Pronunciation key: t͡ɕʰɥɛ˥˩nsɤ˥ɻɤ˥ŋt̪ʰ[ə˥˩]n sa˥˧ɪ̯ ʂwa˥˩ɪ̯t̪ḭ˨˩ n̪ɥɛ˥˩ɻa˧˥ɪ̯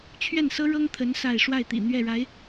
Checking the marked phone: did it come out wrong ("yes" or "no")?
yes